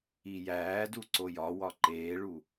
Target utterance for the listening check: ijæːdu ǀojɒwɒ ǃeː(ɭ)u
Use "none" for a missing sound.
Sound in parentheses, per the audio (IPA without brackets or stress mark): ɭ